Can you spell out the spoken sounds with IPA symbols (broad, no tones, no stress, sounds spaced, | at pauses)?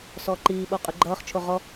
s ɔː ǃ iː ɓ oː qʼ ʉ ɡ͡ǃ ʌː χ t͡ʃʰ o ʁ ɔ